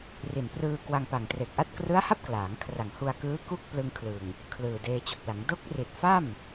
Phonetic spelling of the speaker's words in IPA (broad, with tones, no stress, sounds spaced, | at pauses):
r i˨˩ n p r ɯː˧ k w a˧ ŋ p a˨˩ ŋ t r e˨˩ k̚ ʔ a˥˩ t̚ k r ɯ˦˥ a̯ h a˥˩ p̚ k l aː˩˦ ŋ kʰ r a˨˩ ŋ h u˧ a̯ k ɯː˦˥ k u˥˩ k̚ p l ɯ˧ ŋ kʰ l ɯ˨˩ ŋ | kʰ l ɯː˨˩ d eː˧ t͡ɕ o˨˩ k̚ l a˩˦ ŋ d o˦˥ k̚ r i˨˩ t̚ f a˥˩ m